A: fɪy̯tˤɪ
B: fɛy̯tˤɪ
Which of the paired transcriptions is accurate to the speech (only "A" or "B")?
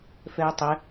B